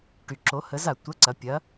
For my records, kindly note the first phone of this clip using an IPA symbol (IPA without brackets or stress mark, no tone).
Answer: ʈ